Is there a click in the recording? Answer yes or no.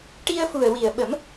no